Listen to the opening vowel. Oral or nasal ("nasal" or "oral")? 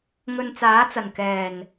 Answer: oral